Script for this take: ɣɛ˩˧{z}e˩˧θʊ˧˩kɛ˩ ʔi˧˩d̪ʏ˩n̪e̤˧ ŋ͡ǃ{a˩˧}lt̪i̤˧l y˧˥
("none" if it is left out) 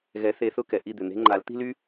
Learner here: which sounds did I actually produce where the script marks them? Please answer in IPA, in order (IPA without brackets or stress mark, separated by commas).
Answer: θ, a˩˧